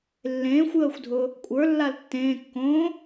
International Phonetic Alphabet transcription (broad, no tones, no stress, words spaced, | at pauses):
lːẽːxʷjəːxʷdʱʊ | kʷʼə˞lːal tːẽːkːõː